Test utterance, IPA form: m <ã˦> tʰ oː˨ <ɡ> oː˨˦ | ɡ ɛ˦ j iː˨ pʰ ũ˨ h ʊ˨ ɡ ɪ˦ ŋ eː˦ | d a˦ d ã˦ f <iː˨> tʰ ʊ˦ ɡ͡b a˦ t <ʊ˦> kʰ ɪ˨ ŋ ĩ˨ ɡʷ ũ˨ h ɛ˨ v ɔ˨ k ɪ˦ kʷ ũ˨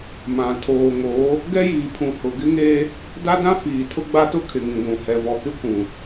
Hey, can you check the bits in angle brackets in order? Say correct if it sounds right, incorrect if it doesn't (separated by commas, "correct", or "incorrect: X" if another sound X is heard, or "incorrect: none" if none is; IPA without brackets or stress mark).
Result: incorrect: ã˨, incorrect: ŋ, correct, correct